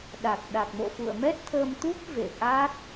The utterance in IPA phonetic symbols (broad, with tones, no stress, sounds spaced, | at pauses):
ɗ a˨˩ k̚ ɗ a˨˩ k̚ m o̰˧˨ f ṵ˧˨ ə̯ m ɛ˦˥ t̚ t̪ʰ əː˧ m t̪ u˦˥ p̚ v ḛ˧˨ ʔ a˦˥ t̚